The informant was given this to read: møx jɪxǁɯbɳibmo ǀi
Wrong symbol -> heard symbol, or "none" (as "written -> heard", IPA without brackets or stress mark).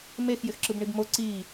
ø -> e